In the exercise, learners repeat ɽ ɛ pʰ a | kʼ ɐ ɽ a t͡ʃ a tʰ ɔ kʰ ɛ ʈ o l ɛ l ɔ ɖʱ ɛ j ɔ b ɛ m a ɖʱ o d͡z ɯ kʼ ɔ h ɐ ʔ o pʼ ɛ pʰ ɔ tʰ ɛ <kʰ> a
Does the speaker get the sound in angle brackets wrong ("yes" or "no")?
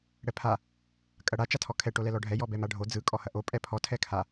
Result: no